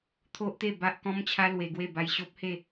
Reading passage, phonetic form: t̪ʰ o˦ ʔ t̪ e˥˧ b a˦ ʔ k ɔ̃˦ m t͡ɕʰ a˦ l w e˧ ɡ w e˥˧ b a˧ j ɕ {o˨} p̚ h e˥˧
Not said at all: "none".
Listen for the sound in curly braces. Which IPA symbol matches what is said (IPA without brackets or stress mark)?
o˦